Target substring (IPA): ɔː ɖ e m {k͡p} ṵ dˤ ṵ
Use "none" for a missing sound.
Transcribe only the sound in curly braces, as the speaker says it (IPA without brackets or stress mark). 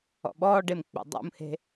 k͡p